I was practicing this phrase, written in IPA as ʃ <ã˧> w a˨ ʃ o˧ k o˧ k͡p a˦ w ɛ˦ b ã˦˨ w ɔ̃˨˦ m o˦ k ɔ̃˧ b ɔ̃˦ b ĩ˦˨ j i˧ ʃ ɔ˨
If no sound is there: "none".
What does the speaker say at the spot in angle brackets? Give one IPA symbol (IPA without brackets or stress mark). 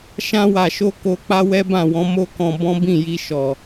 ã˧